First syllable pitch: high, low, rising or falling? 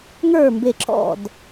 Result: falling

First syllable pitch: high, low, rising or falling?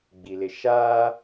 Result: low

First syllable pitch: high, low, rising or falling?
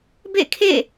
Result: falling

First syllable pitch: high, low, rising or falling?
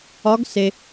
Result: rising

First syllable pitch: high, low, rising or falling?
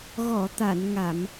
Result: low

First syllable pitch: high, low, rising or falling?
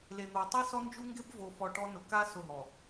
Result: low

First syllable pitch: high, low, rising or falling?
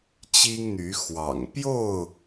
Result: high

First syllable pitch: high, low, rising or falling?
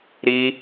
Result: high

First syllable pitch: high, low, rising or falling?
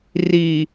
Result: low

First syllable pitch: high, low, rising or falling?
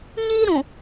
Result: high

